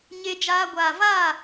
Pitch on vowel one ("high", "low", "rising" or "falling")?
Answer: high